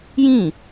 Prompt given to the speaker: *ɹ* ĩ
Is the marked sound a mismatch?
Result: yes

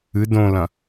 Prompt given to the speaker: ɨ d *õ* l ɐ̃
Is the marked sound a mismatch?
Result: no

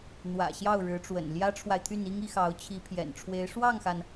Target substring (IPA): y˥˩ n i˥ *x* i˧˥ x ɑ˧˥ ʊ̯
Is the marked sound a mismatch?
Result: yes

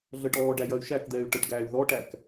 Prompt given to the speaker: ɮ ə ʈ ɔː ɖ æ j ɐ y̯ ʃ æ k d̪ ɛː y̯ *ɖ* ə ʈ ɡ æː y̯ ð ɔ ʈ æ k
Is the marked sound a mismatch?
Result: yes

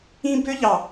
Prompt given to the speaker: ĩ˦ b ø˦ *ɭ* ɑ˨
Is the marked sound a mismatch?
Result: yes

